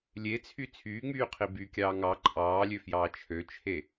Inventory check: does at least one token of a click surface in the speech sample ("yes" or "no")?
yes